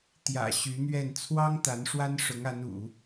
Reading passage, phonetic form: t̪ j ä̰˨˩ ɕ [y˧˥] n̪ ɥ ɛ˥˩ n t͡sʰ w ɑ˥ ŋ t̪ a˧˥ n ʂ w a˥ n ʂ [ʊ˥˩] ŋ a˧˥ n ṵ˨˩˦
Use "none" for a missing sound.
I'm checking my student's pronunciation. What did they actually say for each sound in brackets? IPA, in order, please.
y˧˥, ʊ˧˥

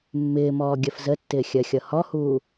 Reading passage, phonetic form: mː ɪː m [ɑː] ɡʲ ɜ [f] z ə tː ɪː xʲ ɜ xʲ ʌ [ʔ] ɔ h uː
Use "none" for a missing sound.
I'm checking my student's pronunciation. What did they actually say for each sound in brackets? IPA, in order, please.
ɔː, f, h

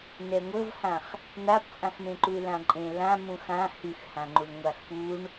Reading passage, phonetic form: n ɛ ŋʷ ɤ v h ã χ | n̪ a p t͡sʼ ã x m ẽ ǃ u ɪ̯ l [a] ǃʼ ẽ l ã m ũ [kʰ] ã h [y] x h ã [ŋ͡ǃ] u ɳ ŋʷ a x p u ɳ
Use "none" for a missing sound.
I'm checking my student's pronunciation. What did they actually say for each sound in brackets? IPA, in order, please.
ã, x, y, ŋ͡ǃ

